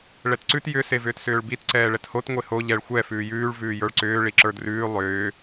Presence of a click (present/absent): present